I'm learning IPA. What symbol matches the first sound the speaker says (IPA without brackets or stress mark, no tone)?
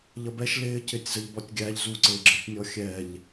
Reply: ʎ